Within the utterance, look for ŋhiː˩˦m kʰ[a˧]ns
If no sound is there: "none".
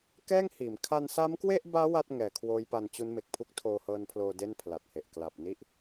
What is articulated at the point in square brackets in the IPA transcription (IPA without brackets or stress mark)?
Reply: a˧